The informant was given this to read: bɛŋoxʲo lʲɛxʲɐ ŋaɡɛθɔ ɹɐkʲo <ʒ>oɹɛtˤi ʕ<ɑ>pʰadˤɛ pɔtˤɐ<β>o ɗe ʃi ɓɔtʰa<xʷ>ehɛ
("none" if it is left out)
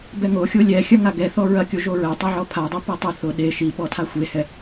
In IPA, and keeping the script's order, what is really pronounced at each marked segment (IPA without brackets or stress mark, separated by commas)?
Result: ʒ, ɔ, θ, xʷ